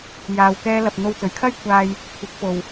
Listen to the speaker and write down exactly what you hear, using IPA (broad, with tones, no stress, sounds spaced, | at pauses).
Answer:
j aː˧ w k ɛː˥ l ɐ˧ p̚ n̪ o˧ w t͡s ɵ˨˥ ɥ kʰ ɐ˥ j kʷʰ aː˧ j | kʷʰ ɪ˨˥ k̚ p o˨ w